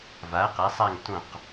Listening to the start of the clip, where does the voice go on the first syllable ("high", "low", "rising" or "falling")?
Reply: rising